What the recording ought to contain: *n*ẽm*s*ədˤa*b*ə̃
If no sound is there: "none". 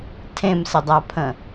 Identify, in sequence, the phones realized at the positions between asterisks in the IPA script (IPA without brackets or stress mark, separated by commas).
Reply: tʰ, s, pʰ